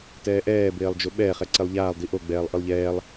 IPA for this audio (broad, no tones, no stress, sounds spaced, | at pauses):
t ɛː ʔ ɛː b eː lˠ d͡ʒ o ɓ ɛ χ ɛ ǀ e lˠ ʎ aː lˠ d i ʔ o ɡ͡b ɛː lˠ ʔ ɯ lˠ ʎ ɛː lˠ